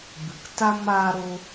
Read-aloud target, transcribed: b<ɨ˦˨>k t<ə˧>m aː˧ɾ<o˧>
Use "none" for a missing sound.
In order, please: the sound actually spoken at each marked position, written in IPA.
ɨ˨, a˧, o˧

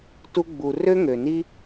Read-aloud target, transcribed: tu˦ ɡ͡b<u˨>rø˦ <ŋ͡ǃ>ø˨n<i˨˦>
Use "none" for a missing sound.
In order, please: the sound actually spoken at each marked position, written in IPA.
u˨, ŋ, i˦

